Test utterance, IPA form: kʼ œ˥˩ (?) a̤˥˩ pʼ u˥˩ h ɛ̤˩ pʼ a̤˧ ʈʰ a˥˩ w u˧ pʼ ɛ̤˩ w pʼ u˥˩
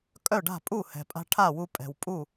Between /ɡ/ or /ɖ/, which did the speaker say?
ɖ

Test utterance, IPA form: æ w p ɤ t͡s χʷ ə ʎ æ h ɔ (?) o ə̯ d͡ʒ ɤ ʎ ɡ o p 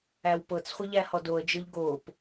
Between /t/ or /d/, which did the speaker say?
d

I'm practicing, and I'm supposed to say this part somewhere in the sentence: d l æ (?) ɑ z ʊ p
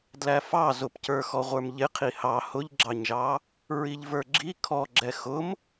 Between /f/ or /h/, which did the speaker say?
f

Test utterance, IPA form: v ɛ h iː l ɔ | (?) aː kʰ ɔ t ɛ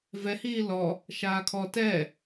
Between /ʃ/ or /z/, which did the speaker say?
ʃ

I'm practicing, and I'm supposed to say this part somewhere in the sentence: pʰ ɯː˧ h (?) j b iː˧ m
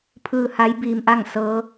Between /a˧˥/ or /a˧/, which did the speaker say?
a˧˥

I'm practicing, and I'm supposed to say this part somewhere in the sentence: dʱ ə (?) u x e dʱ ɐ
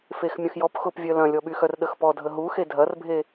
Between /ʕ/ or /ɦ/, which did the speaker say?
ɦ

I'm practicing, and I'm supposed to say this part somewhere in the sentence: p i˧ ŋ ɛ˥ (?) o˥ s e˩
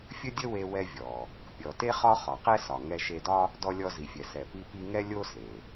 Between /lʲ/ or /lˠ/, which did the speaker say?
lʲ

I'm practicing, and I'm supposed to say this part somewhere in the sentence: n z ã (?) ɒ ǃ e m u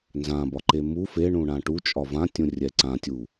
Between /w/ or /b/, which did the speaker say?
b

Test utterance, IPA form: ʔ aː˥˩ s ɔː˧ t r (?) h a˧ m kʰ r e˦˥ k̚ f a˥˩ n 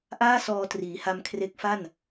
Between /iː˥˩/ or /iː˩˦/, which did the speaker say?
iː˩˦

